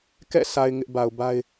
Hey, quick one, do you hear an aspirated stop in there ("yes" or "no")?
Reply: no